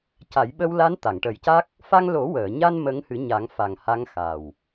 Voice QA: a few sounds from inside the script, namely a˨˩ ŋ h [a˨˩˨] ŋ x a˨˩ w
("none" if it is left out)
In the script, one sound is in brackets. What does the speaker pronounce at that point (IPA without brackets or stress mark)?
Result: a˧˥